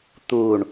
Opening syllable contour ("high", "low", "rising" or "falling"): low